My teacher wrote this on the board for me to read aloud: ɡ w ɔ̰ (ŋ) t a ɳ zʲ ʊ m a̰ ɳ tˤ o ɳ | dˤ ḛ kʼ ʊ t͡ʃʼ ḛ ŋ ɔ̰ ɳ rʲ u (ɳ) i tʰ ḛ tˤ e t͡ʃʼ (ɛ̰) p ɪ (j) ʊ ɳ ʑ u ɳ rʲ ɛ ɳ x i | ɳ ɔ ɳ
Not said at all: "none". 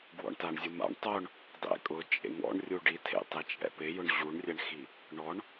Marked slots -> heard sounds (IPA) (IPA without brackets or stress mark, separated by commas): ɳ, ɖ, ɛ̰, j